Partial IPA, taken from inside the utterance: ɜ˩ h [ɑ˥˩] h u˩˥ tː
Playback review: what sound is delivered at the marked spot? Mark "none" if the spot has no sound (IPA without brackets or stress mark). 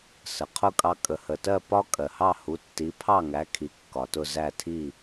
ɑ˥˩